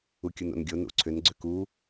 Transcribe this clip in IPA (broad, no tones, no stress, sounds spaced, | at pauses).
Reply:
u kʲ u n o̰ n ɡʲ o n ṵ ǀʰ ʏ n ɡ͡ǀ ʏ k u